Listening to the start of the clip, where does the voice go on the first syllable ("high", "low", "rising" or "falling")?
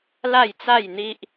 falling